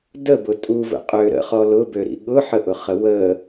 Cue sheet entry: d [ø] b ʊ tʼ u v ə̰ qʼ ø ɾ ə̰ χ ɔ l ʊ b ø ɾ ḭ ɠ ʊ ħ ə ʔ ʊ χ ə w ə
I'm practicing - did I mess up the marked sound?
yes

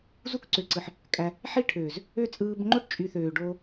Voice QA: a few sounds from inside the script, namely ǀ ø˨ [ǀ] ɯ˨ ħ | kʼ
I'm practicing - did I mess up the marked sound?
no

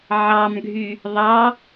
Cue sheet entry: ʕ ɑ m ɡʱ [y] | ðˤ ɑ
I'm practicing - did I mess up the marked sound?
no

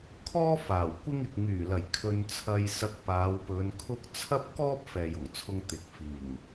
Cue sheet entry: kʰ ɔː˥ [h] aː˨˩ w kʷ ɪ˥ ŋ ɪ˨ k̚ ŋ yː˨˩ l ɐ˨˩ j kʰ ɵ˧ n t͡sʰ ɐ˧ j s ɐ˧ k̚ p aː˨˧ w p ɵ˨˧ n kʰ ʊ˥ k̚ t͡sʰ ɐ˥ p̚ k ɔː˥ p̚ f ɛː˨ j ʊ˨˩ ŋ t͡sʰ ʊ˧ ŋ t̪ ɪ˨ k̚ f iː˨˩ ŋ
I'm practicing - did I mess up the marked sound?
yes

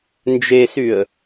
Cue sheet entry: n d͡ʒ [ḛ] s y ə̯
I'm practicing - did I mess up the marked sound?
yes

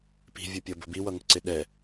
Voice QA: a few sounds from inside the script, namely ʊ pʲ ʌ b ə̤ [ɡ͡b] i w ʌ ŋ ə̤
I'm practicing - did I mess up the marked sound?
yes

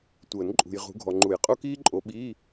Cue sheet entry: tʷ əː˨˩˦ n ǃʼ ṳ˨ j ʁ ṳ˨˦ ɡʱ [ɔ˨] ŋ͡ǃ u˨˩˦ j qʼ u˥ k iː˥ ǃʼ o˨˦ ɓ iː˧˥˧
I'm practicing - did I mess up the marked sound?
no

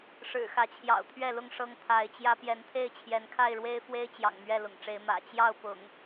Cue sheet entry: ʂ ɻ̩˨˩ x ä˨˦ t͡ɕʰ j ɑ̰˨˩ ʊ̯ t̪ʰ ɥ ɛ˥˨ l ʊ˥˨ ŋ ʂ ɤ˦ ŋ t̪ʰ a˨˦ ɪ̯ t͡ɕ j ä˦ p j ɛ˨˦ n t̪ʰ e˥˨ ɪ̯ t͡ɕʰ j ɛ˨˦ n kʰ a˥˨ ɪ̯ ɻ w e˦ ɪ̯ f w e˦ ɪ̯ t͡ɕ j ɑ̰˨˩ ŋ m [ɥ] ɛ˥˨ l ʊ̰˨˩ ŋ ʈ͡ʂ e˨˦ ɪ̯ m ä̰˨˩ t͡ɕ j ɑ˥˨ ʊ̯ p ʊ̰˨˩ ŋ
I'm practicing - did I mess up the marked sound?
no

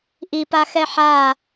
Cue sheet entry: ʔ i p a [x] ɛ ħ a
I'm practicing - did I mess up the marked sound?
no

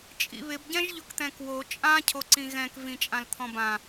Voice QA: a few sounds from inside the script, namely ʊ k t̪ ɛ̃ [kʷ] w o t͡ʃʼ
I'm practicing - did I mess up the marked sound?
yes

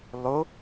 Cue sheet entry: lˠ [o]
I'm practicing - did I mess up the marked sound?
no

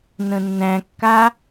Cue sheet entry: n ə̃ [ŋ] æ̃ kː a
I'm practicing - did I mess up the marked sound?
yes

